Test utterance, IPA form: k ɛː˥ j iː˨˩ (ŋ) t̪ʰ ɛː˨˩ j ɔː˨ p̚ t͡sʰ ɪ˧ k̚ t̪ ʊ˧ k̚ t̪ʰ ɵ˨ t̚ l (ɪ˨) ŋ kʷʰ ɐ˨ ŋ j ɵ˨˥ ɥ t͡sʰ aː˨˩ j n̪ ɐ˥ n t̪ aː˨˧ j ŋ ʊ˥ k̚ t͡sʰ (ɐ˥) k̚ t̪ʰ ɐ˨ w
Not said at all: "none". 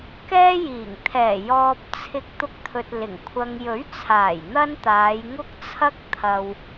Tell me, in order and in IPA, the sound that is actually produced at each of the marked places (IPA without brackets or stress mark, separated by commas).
ŋ, ɪ˨˩, ɐ˥